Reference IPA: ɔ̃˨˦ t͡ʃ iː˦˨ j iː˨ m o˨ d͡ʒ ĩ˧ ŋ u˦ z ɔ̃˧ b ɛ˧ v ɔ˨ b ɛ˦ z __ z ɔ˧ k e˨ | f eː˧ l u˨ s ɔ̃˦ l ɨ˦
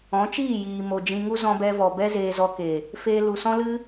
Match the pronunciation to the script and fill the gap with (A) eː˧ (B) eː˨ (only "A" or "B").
A